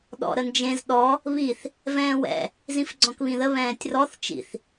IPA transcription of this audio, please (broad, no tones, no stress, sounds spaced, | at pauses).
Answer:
ɗ ɔ̰ ɾ ə n d͡ʒ ẽ z ɗ ɔ | β i θ | v ɛ̃ː w ɛ̰ | z ĩ f ɡ͡ǀ ɔ̃ k β ĩ ð ə β ɛ̃ː tʲ r ɔ θ t͡ʃ ḭ θ